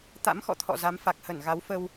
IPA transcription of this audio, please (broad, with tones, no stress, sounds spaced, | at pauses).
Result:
t̪ a̰˧˥ m x ɔ̰˧˨ t̪ʰ ɔ̰˧˨ z a˨˦ m f a˨˩ k̚ h ə˧˩ n ɣ a˨˦ w f ə˧ w